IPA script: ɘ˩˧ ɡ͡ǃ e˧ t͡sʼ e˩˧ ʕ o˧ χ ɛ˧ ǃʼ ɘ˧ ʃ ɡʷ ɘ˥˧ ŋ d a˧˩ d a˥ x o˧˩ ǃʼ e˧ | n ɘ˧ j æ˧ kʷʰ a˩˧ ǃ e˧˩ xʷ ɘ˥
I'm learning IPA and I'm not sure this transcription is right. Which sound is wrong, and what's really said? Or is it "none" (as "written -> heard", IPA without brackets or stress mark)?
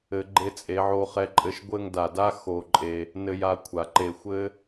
æ˧ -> a˧